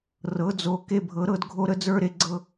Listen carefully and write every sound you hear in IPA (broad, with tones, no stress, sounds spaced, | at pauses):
r ɤ˩˥ d͡z o˩˥ k e˦ bʱ ɤ˩˥ ɾ ɤ˦ d ɡʱ o˦ ɾ ə˦ d͡z ə˞˦ ɾ e˩˥ ɡ͡ǀ ɤ˦